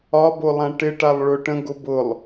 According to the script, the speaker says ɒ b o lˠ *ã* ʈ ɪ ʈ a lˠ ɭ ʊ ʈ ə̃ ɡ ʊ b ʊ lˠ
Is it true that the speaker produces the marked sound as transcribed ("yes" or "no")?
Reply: yes